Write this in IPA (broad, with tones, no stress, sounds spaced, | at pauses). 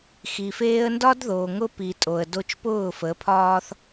x i˨ f eː˦ ə̯ n d ɒ˦ d ð oː˨ ŋ ʊ˦ p i˨ tʼ o˨ ə̯ d o˦ t͡ʃ p ʊː˦˨ f ə˨˦ pʰ ɒː˦ θ